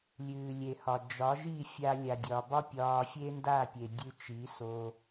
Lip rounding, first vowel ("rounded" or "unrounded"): rounded